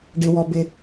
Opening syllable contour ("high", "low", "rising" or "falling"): low